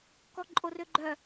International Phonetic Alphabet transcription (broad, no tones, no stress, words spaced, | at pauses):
kɔǃʼorøɡ͡ǃœ